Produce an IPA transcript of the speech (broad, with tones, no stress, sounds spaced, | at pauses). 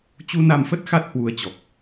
t͡ɕ u˧ n a˧ m f ə˦˥ t̚ x a˦˥ t̚ h w u˨˦ ə̯ t͡ɕ ɔ˨˩ k̚